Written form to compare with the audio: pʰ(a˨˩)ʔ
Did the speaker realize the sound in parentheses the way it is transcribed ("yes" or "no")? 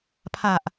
yes